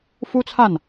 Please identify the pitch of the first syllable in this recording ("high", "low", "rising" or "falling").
high